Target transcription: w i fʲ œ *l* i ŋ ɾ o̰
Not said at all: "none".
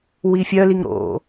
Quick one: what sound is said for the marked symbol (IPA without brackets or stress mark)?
l